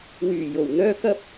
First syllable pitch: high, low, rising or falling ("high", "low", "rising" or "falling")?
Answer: low